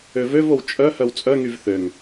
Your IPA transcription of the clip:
øvøvow t͡ʃʼœ hœwt͡sʼœŋyv θøŋ

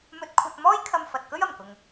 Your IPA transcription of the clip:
mɵ˧t̚kʷʰɐ˧t̚mɔː˥j kʰɐ˧mfɐ˨t̚kɵ˥ɥ ɐ˨˩mkʊ˨ŋ

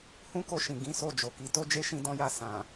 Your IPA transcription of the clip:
hũ˦ko˧ʃĩ˨ ɡĩ˨˦so˦˨ d͡ʒo˨ki˨˦ to˦d͡ʒe˦˨ ʃĩ˧dɔ̃˧ja˧ sã˨

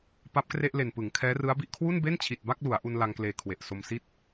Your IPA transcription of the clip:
pa˦˥p̚kre˥˩ʔle˨˩npɯ˩˦ŋ kʰɛː˦˥rɯ˦˥a̯bi˥˩ʔ kʰwu˥˩nbe˥˩nt͡ɕʰi˨˩t̚ ba˥˩k̚lu˩˦a̯ʔu˧n la˧ŋkleː˧ kʰwe˨˩ʔso˧msi˥˩t̚

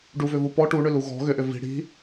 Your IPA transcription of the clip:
ɖuvʏvu pɔ ʈuɳʏlu ɣɔ̤ ɣʏʔʏ vi̤ ɽi̤

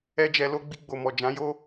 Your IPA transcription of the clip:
ɛ˦d͡ʒɛ˧ lo˧ɡ͡bi˧ ɡ͡bo˨mɔ˨ d͡ʒã˨˦jo˦

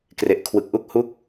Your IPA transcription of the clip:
kre˨˩ʔkʰwɯ˨˩k̚ʔu˥˩k̚ hu˥˩k̚

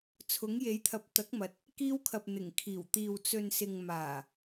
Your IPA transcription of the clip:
t͡sʰʊ˨˥ŋje˨˥jt̪ʰɐ˨˥p̚ t̪ɐ˨˥k̚mɐ˨˥t̚ | kiː˧wkʰɐ˨p̚ n̪ɪ˨˩ŋ kʰiː˨˩wt̪iː˨w t͡sɵ˨nsɪ˨ŋ maː˨˩

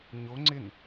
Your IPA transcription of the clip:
ɲo ŋ͡ǀɪn

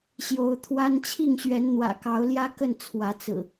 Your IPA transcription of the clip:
ɕjo˨˦ʊ̯t̪ʰwa˦n t͡ɕʰi˥˨ŋɕɥɛ˨˦n n̪wä̰˨˩kɑ˨˦ʊ̯ljä˦ kə˥˨n t͡sʰwä˨˦t͡sɹ̩˨˩

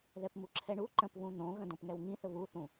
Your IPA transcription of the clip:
ðɛpmuǁʰɛɳu ǃə̃pβũ n̪õɣə̃ dõpŋɛwŋĩθə βuθũ

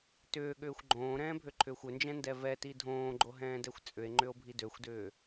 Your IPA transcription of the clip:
tʏːɠʏːxʷ ɡ͡ǃõːɾɛ̃ːbʱøǃʰʏːxʷ ʏnd͡ʒɛ̃ndɛ vɛti dʱõːɡ͡ǃoɦɛ̃ːdɛxʷ t͡sʼʏe̯ŋ͡ǃʏo̯bʱi døxʷdʏː

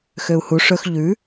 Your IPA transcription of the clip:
xøu̯hu ʂɵx ʎʉ

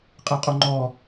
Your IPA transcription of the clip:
qʼeqʼoŋ͡ǃɔ

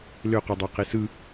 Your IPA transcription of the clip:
løqudˤɑqi sɯ

